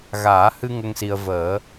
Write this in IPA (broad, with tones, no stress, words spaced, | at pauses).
ɣaː˨˩˦hɨ˧ ŋə˧ŋsi˧ə̯ vəː˨˩˦